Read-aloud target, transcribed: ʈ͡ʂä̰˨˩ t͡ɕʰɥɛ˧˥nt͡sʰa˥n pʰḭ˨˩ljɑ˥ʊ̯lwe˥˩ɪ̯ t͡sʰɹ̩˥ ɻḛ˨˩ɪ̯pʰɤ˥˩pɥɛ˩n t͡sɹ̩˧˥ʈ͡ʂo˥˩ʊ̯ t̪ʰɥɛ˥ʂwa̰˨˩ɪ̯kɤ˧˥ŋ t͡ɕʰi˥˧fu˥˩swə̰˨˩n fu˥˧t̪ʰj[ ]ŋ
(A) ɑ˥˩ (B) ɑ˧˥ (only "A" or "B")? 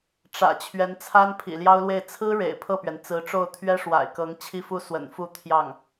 A